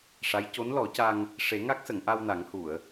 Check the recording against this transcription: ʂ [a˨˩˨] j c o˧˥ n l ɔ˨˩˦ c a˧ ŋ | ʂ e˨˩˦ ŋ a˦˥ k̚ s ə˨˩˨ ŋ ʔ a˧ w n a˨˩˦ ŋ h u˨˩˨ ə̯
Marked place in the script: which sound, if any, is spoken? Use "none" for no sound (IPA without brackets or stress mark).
a˧˥